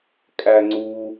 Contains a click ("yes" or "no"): yes